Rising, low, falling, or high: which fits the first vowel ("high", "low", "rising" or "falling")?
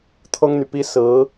high